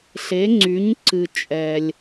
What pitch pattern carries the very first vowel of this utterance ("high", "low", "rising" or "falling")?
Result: rising